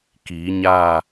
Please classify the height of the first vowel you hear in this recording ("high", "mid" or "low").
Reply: high